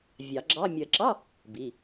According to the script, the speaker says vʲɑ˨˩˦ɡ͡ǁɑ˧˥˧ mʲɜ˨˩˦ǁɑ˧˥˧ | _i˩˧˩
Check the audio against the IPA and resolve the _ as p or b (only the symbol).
b